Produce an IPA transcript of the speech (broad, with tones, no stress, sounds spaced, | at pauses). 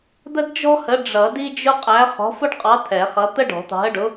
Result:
d̪ ə˥ d d͡ʒ ɔ̤˥ h ə˨˥ ɖ͡ʐ ʌ˨˩˦ d i˥ d͡ʒ ʊ˥ qʼ æ˨˥ χ ɔ̤˨˥ f ʊ˥ ɖ qʼ ɑ˨˥ t̪ʰ ɛ˨˩˦ χ ʌ˨˥ t̪ ə˥ ɖ ɔ̤˨˩˦ t̪ ɑ̤˨˥ ə̯ ɖ ʊ˨˥